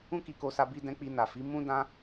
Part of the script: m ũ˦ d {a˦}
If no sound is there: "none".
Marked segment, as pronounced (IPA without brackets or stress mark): ã˦